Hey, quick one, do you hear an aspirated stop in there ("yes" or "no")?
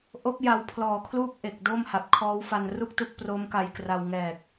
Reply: yes